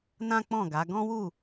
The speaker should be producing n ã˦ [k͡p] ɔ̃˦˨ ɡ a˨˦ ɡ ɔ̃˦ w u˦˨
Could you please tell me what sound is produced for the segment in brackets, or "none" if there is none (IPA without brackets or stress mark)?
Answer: k͡p